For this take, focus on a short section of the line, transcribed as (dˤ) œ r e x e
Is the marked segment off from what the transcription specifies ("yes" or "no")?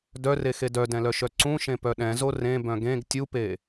yes